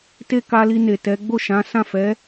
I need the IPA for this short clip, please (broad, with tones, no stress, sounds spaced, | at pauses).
t e˦ k a˧ l i˧ n e˨ t ɛ˨˦ ɡ͡b o˦˨ ʃ ã˨˦ s ã˦˨ f ɛ˨˦